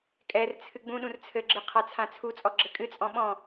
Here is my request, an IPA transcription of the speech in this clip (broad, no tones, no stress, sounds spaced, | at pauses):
kʼ ɛ r t͡sʰ ɨ ɡ͡b ũ ɗ ũ r t͡sʰ ɘ ɡ͡ǁ ɨ qʰ a t͡sʰ ã t͡sʰ u t͡sʼ ɔ ɡ͡ǁ ɘ kʼ ɨ t͡sʼ ɔ̃ ɓ ɔ̃